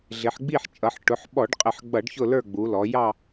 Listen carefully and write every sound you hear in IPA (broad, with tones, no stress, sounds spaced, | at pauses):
ɮ ɪ˩˧ ħ ɡ͡b i˦˨ ħ t͡ʃʼ ʌ˩˧ ħ ʈ ʊ˩˧ ħ ɓ ɔ˧˩˧ ɖ qʼ ə˧˩˧ ħ ɡ͡b ʌ˧˩˧ ɖ ç ʊ˦˨ l ə˞˦˨ ɡ͡b u˩˧ l ɔ˩˧ j ɑ˦˨